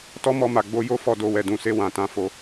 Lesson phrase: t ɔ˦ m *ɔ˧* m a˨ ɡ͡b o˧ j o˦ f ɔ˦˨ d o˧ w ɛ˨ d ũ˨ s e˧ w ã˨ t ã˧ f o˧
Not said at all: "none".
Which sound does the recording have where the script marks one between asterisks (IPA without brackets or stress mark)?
ɔ˧